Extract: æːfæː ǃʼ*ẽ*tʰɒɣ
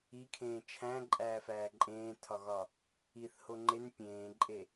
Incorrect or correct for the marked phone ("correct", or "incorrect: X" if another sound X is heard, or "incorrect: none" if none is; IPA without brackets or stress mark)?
incorrect: ẽː